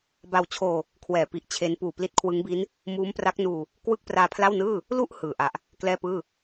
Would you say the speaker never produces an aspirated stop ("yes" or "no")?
no